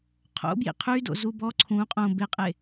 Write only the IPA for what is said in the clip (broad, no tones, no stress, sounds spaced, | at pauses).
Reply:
qʰ o̰ b j ḭ qʰ y d o̰ z u b ɔ ǀʰ ũ qʼ õ b e qʼ e